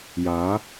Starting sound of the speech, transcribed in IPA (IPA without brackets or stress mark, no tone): j